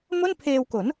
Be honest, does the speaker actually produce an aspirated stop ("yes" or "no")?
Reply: yes